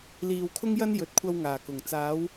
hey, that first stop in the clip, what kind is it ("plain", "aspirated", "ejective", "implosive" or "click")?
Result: aspirated